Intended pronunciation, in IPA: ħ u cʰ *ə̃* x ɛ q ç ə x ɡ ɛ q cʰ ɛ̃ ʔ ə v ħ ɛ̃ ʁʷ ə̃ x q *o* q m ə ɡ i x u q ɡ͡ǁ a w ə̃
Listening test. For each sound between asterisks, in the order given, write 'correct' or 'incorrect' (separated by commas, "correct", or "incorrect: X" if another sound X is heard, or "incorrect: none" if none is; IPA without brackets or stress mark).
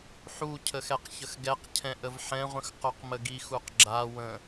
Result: incorrect: ə, correct